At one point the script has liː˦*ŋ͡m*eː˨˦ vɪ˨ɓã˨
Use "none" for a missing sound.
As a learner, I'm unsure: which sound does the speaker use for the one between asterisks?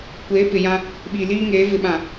ŋ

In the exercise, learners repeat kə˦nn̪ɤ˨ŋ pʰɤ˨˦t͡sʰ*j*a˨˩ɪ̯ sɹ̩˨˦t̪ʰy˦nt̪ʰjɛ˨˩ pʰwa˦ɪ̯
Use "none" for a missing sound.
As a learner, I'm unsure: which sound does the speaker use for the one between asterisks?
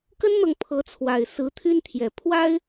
w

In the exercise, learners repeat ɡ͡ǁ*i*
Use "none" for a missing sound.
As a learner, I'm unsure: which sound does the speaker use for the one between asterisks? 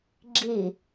i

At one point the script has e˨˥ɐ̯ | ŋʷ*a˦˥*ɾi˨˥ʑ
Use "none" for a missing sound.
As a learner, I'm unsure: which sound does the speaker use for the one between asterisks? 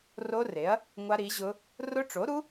a˦˥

